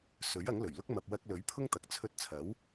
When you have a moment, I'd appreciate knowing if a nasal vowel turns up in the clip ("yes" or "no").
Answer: no